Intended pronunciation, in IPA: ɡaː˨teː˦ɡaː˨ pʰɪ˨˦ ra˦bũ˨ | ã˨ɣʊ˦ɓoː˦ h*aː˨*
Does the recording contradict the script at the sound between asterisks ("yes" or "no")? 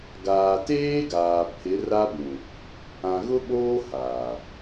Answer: no